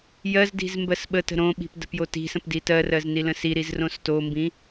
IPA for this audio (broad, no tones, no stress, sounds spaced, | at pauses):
j ɜ z d i̤ z m b ɜ s ɓ ə t ə̤ ɾ õ ɓ i̤ p d ə̤ p j o t i̤ s ə̃ p d i t ɜ r ɜ z n i l ə̃ s i ɾ i z r õ s t o m b ĩ